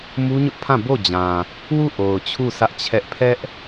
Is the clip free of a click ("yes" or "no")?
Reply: yes